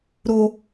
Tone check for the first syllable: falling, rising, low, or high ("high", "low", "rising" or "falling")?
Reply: high